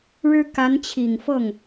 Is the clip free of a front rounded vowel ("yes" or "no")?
yes